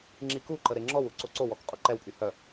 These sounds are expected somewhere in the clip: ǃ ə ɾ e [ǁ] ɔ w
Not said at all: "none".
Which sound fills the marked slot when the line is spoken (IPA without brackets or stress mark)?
ŋ͡ǁ